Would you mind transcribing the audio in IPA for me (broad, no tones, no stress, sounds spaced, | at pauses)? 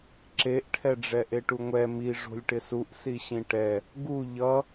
ǁ e ʔ ʈʰ ɛ ɖ͡ʐ ɛ ʔ e ʈ u ŋʷ ɛ m i ʐ o̤ lʲ ʈ ɪ s u ʔ s i ɕ ĩ ʈ ɛ | ɡ u ʎ ʌ